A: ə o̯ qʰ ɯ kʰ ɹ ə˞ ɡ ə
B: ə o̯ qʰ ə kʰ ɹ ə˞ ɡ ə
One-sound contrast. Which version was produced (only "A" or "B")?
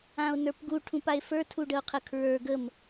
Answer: B